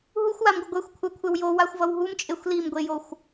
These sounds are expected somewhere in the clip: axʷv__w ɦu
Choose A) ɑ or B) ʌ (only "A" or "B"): B